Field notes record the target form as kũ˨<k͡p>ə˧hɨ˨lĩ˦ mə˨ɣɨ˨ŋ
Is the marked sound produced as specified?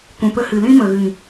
no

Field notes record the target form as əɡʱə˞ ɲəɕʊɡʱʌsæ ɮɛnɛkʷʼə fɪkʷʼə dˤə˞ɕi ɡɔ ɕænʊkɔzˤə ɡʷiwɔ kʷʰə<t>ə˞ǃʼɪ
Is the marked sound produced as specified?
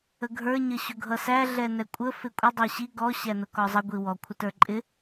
yes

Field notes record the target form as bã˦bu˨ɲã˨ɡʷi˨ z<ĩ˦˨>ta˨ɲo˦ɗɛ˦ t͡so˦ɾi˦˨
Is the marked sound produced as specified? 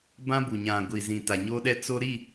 no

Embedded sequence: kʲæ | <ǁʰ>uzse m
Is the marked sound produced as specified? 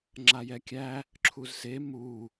yes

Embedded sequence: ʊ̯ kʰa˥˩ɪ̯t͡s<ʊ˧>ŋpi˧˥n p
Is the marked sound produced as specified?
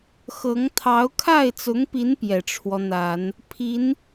no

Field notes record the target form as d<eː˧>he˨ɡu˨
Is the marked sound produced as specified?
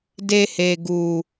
no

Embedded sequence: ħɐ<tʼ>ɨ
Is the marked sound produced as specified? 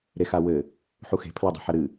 no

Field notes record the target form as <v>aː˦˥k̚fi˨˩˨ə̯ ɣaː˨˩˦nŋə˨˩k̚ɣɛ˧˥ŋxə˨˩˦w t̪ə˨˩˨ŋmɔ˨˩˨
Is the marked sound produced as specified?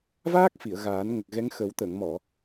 yes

